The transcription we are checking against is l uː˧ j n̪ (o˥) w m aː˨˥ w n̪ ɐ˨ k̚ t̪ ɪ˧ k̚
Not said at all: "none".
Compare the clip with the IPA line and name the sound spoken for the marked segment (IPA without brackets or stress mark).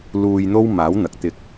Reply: o˥